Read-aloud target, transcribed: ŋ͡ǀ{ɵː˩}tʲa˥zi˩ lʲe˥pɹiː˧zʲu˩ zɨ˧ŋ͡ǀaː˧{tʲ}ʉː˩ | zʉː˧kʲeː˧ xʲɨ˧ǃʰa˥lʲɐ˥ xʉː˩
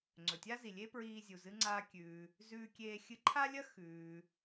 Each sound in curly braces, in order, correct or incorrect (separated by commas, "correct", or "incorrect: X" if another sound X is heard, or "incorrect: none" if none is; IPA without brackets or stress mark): incorrect: ɵ˩, incorrect: kʲ